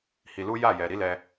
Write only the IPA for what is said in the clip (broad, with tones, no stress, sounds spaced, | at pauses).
h i˧ l u˦ j a˦˨ j ɛ˨ ɾ i˨˦ l ɛ˧